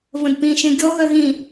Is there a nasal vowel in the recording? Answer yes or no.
yes